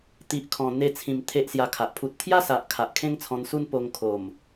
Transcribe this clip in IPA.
t̪i˨ʔkʰɔ̃˨˩ n̪e˧t͡sʰĩ˨˩m t̪ʰe˦ʔsja˧kʰa˨ʔ pʰu˨t̚t̪ʰja˦sa˨ʔ kʰa˨ʔkʰẽ˦ŋt͡sʰɔ̃˧nsu˦n po˧ŋkʰo˨˩m

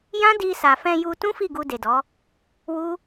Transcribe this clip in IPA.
jã˦di˧sa˨ fɛ̃˧ju˧tũ˦ fi˦˨ɡu˧ de˨dɔ˨˦ | wu˦

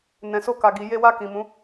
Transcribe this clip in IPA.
nɛ̃˨so˧ka˨ɡi˨ je˧wa˧ kĩ˨mũ˨˦

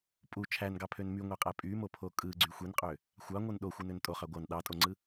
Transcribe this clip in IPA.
pʼu t͡ʃʰænɡɑpʰøn myŋʷæqʼæ pʼymopʰo kʼɯɡ͡ǀy xʷinqʼø | xʷɑŋʷɯn ɗoxʷɯnøn tʼoχɑ ɡʷɑn ɗɑtʼoŋ͡ǀɯ

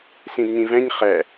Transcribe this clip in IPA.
sĩdɲĩvɛ̃ɲ χɛ

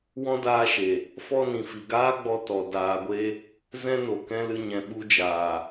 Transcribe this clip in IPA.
wɔ̃˦daː˧ʃe˨ | fɔ˧nĩ˨fi˨ ɡaː˦ɡ͡bɔ˧ tɔ˧ daː˧ɡʷe˦ | zɛ̃˦no˨kɛ̃˦lɨ˧ ɲɛ̃˨ɓu˧d͡ʒaː˨

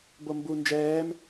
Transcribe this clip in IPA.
bombu nd͡ʒɛːm

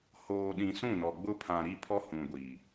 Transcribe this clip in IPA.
hoː˨ɗĩ˨ sũ˦˨nɔ˨ɡ͡bʊ˦ pʰã˨ ɾi˦˨pʰɔ˦hũ˨ ɡʷiː˨

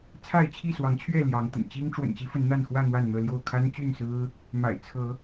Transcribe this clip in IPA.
t͡sʰa˥˨ɪ̯t͡ɕʰi˥˨swɑ˨˦ŋt͡ɕʰɥɛ˥˨ ljɑ˨˦ŋt̪ə̰˨˩n t͡ɕi˦ŋ ʈ͡ʂwə̰˨˩nt͡ɕi˦ fə˨˦nn̪a˥˨nxwä˥˨ n̪wa˥˨nn̪ɤ˥˨ljo˥˨ʊ̯ kʰa˦nt͡ɕy˥˨nsɹ̩˦ | ma̰˨˩ɪ̯ t͡sʰɤ˨˦

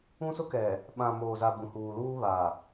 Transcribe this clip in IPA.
ũ˦sʊ˦kɛ˨ | ɓã˨ moː˨za˨ bũ˨huː˨luː˦ βa˨

